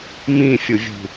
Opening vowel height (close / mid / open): close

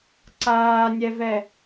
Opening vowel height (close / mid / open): open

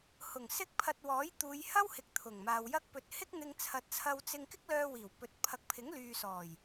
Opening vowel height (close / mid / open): close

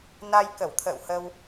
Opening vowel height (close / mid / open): open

